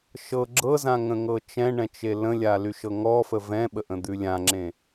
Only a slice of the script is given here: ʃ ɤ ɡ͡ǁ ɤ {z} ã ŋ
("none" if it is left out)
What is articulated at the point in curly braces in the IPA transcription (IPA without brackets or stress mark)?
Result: z